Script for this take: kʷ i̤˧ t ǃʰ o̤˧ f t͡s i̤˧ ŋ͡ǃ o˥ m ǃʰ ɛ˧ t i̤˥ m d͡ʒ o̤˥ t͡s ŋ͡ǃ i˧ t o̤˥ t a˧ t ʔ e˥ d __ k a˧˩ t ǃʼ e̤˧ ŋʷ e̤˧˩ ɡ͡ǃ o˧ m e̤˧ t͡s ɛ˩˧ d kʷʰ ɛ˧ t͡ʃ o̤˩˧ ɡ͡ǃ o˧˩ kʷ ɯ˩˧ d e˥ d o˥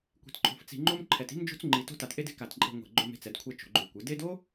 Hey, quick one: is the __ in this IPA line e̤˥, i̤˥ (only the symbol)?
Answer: e̤˥